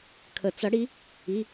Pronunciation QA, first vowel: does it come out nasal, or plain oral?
oral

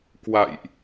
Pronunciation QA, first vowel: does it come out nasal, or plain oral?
oral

